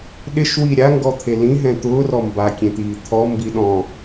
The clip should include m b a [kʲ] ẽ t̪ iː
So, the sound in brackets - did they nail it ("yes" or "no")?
yes